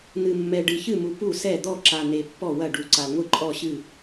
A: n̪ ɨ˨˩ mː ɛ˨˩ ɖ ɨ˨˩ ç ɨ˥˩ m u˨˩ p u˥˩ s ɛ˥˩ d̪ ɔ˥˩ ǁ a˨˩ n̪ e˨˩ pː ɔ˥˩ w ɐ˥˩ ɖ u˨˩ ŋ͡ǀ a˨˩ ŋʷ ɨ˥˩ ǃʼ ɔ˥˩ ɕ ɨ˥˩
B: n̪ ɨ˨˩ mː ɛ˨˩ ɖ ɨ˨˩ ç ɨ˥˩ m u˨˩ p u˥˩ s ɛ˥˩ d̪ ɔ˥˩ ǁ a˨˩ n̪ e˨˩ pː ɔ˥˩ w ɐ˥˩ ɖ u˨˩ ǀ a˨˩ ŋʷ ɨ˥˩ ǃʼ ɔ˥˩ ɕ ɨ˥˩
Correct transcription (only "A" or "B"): B